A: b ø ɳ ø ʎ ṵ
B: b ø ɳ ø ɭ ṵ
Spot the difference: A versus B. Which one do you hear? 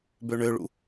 B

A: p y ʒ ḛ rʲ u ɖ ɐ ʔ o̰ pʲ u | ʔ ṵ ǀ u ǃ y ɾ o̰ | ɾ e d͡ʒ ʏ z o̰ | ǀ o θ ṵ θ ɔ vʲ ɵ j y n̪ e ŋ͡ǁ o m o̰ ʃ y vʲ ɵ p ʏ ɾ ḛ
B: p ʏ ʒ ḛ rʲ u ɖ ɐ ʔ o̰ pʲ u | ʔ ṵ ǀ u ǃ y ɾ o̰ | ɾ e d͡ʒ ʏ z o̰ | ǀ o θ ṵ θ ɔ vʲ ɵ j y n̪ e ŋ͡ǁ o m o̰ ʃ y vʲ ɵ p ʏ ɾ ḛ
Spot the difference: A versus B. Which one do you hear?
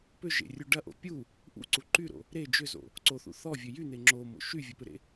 B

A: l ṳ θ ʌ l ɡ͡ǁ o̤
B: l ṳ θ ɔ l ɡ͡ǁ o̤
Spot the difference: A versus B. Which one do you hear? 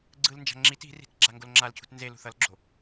A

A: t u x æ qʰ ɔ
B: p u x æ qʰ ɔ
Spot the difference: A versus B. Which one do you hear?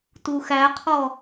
A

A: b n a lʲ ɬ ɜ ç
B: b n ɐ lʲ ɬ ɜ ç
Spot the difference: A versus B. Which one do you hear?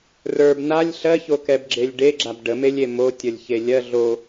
A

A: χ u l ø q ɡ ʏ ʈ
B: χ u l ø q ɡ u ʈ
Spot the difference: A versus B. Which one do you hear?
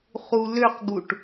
B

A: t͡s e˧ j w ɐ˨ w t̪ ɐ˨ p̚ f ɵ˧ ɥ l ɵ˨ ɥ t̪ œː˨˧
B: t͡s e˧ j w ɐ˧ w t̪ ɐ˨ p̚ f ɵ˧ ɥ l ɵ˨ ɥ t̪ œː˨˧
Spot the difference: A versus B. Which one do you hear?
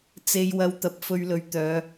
B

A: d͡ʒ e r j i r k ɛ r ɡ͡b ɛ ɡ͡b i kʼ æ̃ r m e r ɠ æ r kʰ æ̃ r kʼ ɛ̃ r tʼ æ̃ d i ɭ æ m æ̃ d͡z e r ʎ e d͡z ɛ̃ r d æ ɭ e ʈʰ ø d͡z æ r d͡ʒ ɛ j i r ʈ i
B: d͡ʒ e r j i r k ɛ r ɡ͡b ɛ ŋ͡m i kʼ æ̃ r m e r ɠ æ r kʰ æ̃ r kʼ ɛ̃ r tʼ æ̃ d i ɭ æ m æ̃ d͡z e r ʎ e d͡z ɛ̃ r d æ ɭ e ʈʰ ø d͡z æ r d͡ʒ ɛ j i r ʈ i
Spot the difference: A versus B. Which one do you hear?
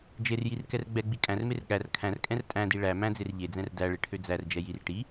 A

